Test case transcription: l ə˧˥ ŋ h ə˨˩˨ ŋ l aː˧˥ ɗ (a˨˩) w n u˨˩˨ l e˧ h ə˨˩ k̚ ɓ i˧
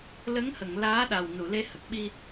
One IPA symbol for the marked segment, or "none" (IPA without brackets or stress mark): a˨˩